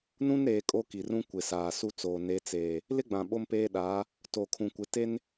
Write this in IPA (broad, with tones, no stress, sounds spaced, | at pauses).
n ũ˦ n ɾ eː˨ kʼ o˦ k i˨ r ũ˦ kʷ ɪ˨ s aː˨ s u˦ t͡s oː˨ n e˨˦ t͡s eː˨ | l ɪ˦ ɡ͡b ã˨ ɓ o˦ m p eː˦ ɗ aː˨˦ | t o˨ kʰ ũ˨ kʷ ɪ˨˦ t e˦ n